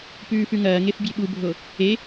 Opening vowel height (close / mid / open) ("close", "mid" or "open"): close